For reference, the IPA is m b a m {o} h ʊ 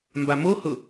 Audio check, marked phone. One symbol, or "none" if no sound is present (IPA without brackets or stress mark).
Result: o